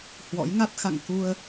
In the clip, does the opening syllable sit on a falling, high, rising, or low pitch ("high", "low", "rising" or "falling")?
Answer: rising